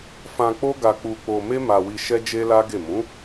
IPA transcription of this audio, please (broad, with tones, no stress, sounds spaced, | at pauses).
f ã˧ k͡p o˦ ɡ a˧ k͡p u˧ k͡p o˧ m e˦ m a˧ w i˧ ʃ ɛ˦ d͡ʒ e˦ l a˦ ɡ e˦˨ m ũ˨˦